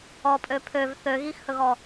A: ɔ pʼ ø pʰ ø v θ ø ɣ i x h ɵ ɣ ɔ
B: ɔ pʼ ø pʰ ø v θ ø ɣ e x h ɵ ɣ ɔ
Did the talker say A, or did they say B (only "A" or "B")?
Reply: A